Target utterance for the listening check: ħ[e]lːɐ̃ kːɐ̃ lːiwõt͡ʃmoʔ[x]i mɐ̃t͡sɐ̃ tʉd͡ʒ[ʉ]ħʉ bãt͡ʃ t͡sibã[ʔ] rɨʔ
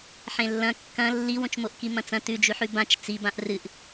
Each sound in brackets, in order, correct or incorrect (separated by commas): incorrect, incorrect, correct, correct